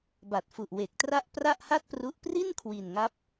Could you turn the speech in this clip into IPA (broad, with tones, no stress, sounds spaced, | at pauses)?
b a˨˩ t̚ f u˨˩ ʔ w e˨˩ k̚ t r a˥˩ ʔ p r a˥˩ ʔ h a˥˩ t̚ p r u˦˥ ʔ p r i˥˩ n kʰ w i˨˩ n ŋ a˦˥ p̚